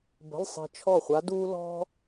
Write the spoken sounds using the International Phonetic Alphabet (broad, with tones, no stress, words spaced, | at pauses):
bə̤˧˥˧lˠsˤi̤˧ t͡ʃʰɔ˥˩χʷa˧˥ duː˥ lɔ̤˥